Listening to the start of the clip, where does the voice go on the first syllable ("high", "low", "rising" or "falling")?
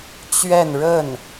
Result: falling